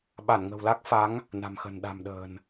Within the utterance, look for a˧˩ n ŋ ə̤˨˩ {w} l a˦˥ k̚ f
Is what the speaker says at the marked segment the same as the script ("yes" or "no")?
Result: yes